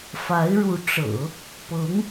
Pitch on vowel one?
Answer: rising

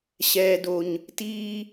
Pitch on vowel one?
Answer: low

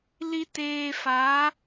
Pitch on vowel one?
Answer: high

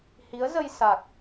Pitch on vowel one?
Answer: rising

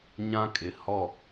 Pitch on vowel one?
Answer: high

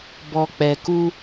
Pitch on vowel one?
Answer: low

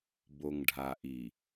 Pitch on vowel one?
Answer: low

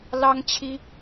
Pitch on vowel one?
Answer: high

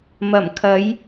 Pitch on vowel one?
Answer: low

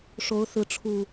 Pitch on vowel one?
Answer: rising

